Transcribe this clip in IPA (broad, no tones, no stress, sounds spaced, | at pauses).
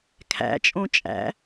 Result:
kʰ æ̰ t͡ʃʼ õ t͡ʃʼ æ̰